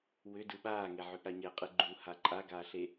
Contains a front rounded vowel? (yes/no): yes